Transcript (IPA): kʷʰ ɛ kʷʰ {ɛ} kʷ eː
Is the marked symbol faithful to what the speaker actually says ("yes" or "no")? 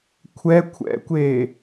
no